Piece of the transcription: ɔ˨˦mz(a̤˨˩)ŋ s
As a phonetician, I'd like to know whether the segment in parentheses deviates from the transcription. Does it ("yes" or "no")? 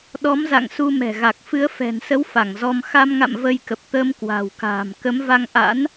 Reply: yes